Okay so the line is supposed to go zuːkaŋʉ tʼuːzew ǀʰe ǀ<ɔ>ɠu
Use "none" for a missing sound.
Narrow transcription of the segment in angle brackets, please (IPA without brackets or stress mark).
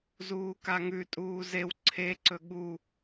ɵ